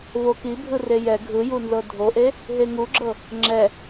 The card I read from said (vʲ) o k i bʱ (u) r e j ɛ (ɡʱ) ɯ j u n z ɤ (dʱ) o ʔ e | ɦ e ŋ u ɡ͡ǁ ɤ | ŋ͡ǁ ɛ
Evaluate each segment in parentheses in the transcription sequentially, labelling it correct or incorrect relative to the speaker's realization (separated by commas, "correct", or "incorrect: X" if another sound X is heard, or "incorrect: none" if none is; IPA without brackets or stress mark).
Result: incorrect: v, incorrect: ɯ, correct, correct